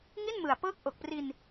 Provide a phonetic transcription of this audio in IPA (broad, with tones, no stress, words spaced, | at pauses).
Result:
ŋi˥˩nmɯ˨˩a̯ pɤː˦˥k̚ʔo˨˩k̚pri˧n